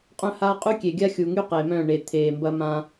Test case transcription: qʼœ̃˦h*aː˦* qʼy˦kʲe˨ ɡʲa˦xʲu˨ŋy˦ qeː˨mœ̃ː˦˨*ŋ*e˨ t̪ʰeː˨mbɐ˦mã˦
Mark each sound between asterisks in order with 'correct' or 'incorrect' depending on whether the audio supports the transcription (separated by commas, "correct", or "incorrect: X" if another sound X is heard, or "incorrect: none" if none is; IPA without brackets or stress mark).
correct, incorrect: ɳ